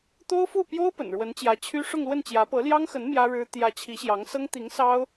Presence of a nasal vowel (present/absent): absent